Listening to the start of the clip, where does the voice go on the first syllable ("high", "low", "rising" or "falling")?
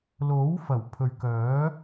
rising